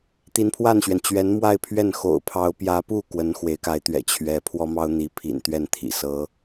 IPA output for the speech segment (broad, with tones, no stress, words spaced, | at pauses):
t̪i˧˥npʰwa˥˩nɕɥɛ˩n t͡ɕɥɛ˧˥nmwa˥˧ɪ̯pʰɥɛ˥˩n xo̰˨˩ʊ̯pʰɑ˧˥ʊ̯ pjä˧˥pu˥˩ kwə˧˥nxwe˧˥ɪ̯ka˧˥ɪ̯t̪ɥɛ̰˨˩ t͡ɕʰɥɛ˧˥ pʰwɔ˥mɑ˥ʊ̯n̪i˧˥ pʰḭ˨˩nt̪ɥɛ˥˩n t̪ʰḭ˨˩sɤ˧˥